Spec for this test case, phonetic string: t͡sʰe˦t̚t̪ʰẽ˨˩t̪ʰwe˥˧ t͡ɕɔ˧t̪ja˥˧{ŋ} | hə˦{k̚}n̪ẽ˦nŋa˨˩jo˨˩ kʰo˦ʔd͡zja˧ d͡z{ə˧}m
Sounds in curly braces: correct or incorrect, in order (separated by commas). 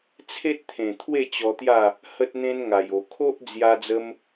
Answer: incorrect, incorrect, incorrect